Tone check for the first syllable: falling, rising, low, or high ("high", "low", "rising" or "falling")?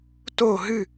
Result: falling